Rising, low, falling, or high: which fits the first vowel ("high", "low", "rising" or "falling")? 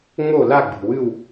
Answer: falling